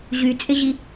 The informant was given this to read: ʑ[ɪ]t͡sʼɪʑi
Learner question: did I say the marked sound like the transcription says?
no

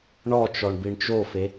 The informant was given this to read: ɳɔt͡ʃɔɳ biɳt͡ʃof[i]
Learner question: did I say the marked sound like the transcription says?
no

